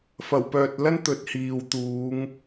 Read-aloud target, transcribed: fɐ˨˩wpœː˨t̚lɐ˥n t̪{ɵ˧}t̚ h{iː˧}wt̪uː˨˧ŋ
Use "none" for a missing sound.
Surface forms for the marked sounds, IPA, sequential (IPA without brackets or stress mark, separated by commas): ɵ˨˥, iː˨